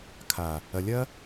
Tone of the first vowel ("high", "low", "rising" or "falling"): low